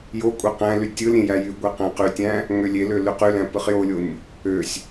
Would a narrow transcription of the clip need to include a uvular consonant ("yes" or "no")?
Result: yes